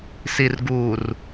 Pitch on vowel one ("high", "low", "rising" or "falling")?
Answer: low